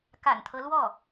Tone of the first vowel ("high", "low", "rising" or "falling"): low